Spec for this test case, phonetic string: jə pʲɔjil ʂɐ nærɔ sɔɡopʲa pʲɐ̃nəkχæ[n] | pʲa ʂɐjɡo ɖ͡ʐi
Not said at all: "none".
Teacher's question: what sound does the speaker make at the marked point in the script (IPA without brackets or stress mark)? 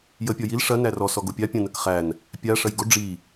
n